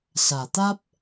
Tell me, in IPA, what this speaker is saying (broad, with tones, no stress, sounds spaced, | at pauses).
s a˨˩ t̪ a˦ p̚